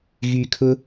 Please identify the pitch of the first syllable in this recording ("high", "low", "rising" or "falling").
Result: low